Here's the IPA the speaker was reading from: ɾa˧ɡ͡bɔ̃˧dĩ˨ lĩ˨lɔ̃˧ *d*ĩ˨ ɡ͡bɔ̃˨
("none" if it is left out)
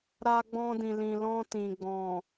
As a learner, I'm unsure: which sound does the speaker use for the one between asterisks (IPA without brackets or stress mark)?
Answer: t